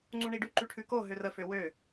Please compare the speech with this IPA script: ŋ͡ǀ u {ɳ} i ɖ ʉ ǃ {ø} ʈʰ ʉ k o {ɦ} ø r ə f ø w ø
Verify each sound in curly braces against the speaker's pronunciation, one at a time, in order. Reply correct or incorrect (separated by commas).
correct, incorrect, correct